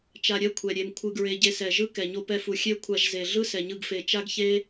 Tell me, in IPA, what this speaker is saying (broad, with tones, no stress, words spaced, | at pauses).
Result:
t͡ʃa˧ɾʲɛ˦kʷʰɛ˨ ɾʲe˧mkʷʰɯ˧ɡɹe˧ ɟe˧sɛ˨ʒɯ˦kɛ˨ ɲo˧pɛ˧fu˨ xʲe˦ kʷʰa˧ʒze˨ ɮɯ˦sɛ˨ɲɯ˧ɡ fe˨ t͡ʃa˦ɡçe˦